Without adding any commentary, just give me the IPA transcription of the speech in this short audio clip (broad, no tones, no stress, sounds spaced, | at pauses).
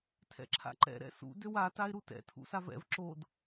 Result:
tʰ ɛ̰ ǁʰ a̰ ǃ ɛ̰ ɾ ɛ̰ s ṵ d ø w a t a ɪ̯ ɾ u t ɛ̰ tʰ ṵ s a v ɛ̰ v ǁ o d